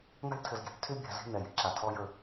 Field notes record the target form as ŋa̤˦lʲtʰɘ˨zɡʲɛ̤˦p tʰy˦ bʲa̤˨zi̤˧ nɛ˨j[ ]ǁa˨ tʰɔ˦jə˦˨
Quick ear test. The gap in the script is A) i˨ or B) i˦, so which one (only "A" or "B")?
A